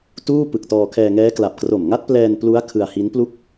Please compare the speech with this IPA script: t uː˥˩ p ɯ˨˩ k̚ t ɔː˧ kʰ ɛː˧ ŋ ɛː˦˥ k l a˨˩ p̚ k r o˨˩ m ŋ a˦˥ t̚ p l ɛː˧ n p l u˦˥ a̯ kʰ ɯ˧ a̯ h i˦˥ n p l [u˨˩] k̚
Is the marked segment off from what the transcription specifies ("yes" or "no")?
yes